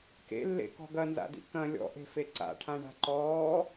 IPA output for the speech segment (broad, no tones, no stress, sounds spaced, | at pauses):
k ḛ lː ḛ k ɔ̤ ɡ ɐ n z a̰ d ḭ k ɐ̃ lʲ ɔ̰ ʔ e̤ f e ǀ a̰ ʈʰ ã ɳ a̤ ǃ ɔː